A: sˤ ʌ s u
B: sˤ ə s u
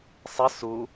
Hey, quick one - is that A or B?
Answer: B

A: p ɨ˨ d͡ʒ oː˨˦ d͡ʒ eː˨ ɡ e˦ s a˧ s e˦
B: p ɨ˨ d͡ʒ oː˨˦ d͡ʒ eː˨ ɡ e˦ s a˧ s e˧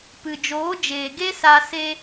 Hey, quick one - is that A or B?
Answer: B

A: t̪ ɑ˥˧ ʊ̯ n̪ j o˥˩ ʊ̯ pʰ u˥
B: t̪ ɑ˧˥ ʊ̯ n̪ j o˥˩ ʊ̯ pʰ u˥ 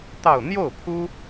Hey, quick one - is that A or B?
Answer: A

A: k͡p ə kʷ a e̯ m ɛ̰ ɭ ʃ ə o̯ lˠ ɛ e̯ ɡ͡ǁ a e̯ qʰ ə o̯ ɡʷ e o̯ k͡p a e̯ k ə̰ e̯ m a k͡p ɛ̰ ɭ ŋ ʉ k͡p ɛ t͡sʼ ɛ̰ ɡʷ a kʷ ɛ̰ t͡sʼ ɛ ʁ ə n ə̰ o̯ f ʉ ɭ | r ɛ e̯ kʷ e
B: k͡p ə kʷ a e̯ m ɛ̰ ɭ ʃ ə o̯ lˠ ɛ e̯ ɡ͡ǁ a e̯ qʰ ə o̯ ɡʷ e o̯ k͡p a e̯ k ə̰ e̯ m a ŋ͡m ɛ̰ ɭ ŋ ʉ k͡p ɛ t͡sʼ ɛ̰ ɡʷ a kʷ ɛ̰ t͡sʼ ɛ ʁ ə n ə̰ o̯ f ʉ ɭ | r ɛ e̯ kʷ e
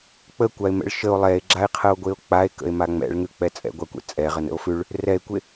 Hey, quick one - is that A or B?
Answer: B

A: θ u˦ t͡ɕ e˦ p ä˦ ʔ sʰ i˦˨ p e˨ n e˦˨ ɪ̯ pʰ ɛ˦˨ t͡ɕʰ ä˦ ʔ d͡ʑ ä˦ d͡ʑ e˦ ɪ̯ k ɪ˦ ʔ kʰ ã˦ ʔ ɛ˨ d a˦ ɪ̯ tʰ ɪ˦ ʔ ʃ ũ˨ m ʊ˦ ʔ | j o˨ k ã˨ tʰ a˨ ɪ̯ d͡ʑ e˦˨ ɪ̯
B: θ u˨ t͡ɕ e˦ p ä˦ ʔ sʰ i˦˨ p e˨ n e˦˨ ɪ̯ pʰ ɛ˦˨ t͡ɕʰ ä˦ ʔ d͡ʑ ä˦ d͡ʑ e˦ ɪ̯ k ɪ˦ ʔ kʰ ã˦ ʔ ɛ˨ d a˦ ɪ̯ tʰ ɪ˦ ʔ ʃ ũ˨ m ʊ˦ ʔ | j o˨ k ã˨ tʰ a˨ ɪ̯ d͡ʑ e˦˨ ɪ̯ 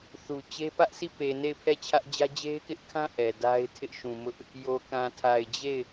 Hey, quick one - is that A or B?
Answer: B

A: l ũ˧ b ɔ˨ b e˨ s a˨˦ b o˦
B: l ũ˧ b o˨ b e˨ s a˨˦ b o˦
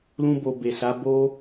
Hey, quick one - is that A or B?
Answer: B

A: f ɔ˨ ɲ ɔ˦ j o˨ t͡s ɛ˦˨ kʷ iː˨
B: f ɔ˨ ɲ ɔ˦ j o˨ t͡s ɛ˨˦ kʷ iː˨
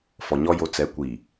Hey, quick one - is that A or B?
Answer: B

